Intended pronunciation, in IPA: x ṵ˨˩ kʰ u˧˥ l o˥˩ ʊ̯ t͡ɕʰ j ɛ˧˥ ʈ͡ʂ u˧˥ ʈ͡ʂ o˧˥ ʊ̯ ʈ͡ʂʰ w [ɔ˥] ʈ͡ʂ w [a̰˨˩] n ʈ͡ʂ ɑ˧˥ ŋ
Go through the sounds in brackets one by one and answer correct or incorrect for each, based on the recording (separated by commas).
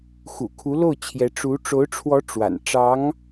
incorrect, correct